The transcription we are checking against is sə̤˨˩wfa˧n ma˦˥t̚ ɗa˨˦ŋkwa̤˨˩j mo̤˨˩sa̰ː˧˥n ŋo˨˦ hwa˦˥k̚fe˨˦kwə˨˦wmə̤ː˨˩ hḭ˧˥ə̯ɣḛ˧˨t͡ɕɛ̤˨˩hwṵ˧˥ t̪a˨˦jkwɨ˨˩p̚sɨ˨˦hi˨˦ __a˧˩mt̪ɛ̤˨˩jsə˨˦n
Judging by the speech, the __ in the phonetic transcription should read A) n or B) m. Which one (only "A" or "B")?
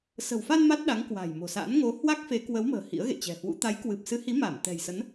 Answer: B